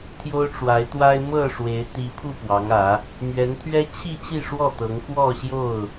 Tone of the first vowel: high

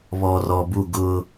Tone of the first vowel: low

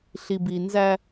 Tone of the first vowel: low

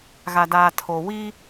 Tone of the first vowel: low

